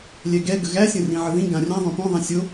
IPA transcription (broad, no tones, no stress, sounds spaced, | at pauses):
lʲ ɛ ɡ ɛ ɡ ə ɣ æ sʲ ə̃ r ĩ ʕ ə ð ĩ ɡ ã rʲ ã ðˤ õ p õ ðˤ ɛ̃ sʲ o